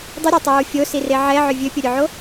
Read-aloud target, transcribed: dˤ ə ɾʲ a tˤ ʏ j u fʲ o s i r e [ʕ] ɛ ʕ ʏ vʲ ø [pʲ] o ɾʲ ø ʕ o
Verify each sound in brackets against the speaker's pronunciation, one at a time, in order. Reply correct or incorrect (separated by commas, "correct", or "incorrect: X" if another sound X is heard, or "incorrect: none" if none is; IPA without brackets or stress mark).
correct, correct